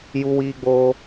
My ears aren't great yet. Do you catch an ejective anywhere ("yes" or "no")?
no